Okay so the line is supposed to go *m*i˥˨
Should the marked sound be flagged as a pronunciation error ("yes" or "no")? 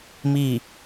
no